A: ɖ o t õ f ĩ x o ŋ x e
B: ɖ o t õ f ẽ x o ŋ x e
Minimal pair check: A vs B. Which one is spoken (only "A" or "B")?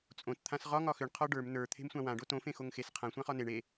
B